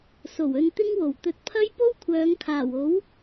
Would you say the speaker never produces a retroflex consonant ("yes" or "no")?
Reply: yes